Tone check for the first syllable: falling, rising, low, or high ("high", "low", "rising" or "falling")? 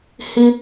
high